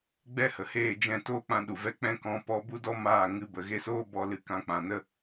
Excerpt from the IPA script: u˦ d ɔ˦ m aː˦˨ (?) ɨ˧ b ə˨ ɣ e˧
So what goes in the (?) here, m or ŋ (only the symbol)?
ŋ